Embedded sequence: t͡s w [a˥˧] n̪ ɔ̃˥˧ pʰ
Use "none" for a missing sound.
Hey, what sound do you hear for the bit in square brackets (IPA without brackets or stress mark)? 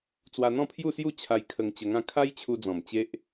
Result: a˧